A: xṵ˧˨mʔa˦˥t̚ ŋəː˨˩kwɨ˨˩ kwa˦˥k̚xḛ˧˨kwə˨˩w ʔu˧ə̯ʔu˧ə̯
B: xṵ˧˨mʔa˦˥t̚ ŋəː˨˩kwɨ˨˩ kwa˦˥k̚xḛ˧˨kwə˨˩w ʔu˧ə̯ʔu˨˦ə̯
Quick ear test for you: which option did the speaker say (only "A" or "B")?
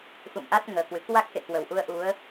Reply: B